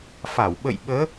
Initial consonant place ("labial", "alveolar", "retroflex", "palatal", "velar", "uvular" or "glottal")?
labial